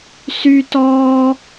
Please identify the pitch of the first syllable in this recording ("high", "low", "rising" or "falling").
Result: high